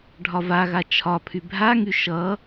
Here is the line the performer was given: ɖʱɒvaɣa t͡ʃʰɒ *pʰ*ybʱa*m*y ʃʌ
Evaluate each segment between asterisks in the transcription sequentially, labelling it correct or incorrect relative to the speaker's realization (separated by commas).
correct, incorrect